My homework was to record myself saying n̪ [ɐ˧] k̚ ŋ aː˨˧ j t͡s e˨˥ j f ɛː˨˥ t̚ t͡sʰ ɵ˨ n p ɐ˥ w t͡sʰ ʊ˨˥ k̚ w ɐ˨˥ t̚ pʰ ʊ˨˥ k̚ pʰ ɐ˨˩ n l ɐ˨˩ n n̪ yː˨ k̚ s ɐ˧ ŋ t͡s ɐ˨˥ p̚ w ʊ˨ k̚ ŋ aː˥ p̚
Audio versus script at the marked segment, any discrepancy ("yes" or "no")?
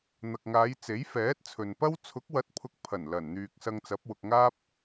yes